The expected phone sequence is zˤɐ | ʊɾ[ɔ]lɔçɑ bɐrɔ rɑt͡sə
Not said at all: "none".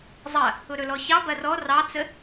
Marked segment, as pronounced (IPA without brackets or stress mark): ɵ